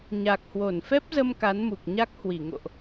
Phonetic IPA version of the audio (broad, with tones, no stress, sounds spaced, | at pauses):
ɲ a˨˩ k̚ h w o˧˩ n f ɛ˦˥ p̚ z ə˧ m k a˨˦ n m u˨˩ k̚ ɲ a˦˥ k̚ h w i˧˩ ŋ o̰˧˨ ʔ